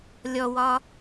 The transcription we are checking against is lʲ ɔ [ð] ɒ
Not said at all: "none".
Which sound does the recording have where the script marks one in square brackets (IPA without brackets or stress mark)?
w